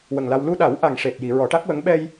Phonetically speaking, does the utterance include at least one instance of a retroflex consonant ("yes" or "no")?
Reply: yes